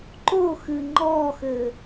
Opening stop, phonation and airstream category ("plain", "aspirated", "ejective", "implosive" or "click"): click